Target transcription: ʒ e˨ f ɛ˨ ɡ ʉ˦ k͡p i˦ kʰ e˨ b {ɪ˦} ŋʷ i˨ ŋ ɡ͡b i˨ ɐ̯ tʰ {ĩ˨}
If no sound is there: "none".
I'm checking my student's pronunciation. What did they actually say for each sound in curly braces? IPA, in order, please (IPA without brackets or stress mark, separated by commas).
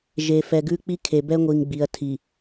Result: ɛ˦, i˨